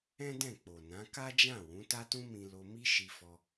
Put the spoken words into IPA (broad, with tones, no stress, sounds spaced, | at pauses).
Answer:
ɛ̃˦ d ɛ̃˦˨ k͡p o˨ n ã˨˦ k a˦ d͡ʒ ã˦˨ w ũ˨˦ t a˦ t ũ˦ m ĩ˧ l o˧ m i˦ ʃ i˧ f ɔ˧